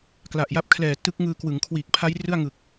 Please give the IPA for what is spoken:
k l a˨˩ ʔ j a˦˥ p̚ kʰ l ɛː˨˩ t ɯ˦˥ k̚ ŋ ɯː˧ k w ɯ˩˦ ŋ kʰ w iː˨˩ k̚ pʰ a˦˥ j r ɯ˥˩ a̯ ŋ ɯ˨˩ k̚

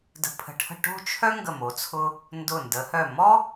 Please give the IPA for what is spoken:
d ə̤˧ pʰ ə̤˧˩ ʈʰ ə̤˥˧ ʈ o̤˥˧ t͡ʃʰ œ˥ ŋ ɡ ə˧˩ m o˩˧ t͡sʰ ʊ˧ | n d ʊ˧˩ n d ə˩˧ h œ˧˩ m ɔ˥

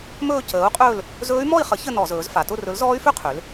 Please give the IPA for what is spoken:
m ɵː˥˧ c əː˨˥ u̯ qʼ ɵː˥˧ l | z ɵː˦˥ y̯ m ɔ˥˧ i̯ χ ə˨˥ ç ə˥˧ n ɔ˧˩˧ z ɵː˩˧ z f a˩˧ t ʊ˥˧ r ɵ˨˥ l z ɔː˦˥ y̯ f ø˥˧ qʰ ø˩˧ l

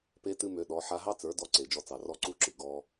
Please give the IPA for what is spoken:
p e˦ t ɨ˦ m ø˧ ɗ ɔ˨˦ ħ a˧ ɦ ɑ˦ t͡s ə˞˨˦ d ɔ˧ ǀ e˨ d͡ʒ ɔ˧ t͡s ɑ˨ r ɔ˦ ǀ u˦ ǁ ɨ˨ ɡ ɔ˧

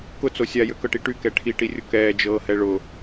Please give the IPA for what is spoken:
k ʊ t͡s o sʲ a j ø k ɤ ʈ i ʈ y k ɛ ʈʰ i ʈ i rʲ ʊ k ɛː d͡ʒ ɤː h ɛ ɭ ʊ

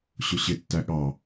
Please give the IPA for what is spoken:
ɕ ʊ ɕ ɪ tː æ ɠ ɑ

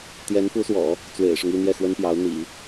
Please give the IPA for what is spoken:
t̪ j ɛ˧˥ n f u˧˥ s w ɔ̰˨˩˦ | t͡s w ḛ˨˩ ɪ̯ ʂ ʊ˦ ŋ i˥˧ n̪ j ɛ˥˩ x w ə˥ n p j ɑ˧˥ ʊ̯ n̪ ḭ˨˩˦

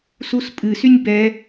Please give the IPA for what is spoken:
s u s pʼ ɨ s y nʲ b ɛ

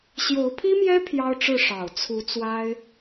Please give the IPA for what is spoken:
ɕ j o˧˥ ʊ̯ pʰ i˥ m j ɛ˥ pʰ j ɑ˥ ʊ̯ ʈ͡ʂ ɻ̩˥˩ ʂ ɑ˨˩ ʊ̯ t͡sʰ u˧˥ t͡s w a˥ ɪ̯

